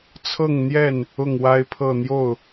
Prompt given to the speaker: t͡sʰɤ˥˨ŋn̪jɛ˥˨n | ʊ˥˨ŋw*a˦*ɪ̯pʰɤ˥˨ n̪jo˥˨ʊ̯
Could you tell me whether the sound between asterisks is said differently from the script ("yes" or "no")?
no